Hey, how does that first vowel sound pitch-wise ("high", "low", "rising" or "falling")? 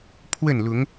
falling